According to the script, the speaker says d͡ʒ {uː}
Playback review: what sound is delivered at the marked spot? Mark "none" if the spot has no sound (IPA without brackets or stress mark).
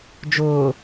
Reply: ʊː